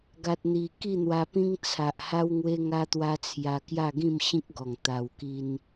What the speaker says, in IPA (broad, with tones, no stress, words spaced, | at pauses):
ɡa˨t̚n̪i˨˩ ki˥˧n̪wa˧pĩ˦ŋ t͡sʰa˨ʔha˦w ŋwe˦ŋa˦t̪wa˦t͡sʰja˧ kja˥˧ɡĩ˥˧mɕĩ˦k̚ɡɔ˨˩ŋ t̪a˧wki˦n